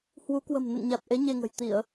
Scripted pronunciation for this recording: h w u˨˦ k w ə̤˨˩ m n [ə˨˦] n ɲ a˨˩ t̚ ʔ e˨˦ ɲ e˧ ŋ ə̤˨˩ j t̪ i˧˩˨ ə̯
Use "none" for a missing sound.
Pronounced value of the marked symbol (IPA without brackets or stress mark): ə̰˧˨